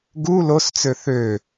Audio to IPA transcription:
ɡu lost͡sø θø

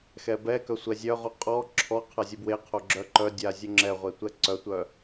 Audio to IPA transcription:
xɛbɛkœ sʷɛzʲœʁu qʼɔ ǁʰɔ qʰazʲubweqʰo ɡ͡ǁœǃœdʲa zʲoŋ͡ǁɛʁʷe tʷɛǀœtʷœ

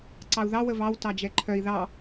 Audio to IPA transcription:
ǀɑu̯ðɑ wəvɑw tɑd͡ʒɛǃʰœi̯ ðɑ

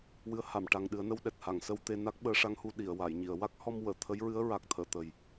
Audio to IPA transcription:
wɨ˧˥ə̯ha˨˩˨mʈa˨˩ŋɗɨ˨˩˦ə̯ nə˧wɗɛ˨˩t̚ha˨˩˨ŋ sə˧wt̪e˧ na˦˥k̚ɓəː˧˥ʂa˧˥ŋhu˧ ɗi˨˩˨ə̯wa˨˩˨j ɲi˨˩˨ə̯ wa˦˥k̚hɔ˧m wəː˨˩˨ t̪ʰə˧˥jɹɨ˧˥ə̯ɹa˨˩k̚ t̪ʰəː˨˩˨t̪ə˨˩j

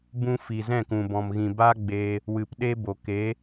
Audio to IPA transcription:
bũ˧ fi˨zɛ̃˦˨kũ˨ bɔ̃˨mɣĩ˨ ba˦ɡ͡beː˧ | wɨ˨pɗe˦bo˨ ke˨˦

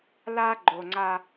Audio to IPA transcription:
la˦ ɡ͡ǃo˨ŋ͡ǀa˦

